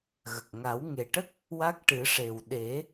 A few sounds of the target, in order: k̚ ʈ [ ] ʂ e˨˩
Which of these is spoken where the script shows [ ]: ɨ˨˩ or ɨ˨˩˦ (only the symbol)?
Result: ɨ˨˩˦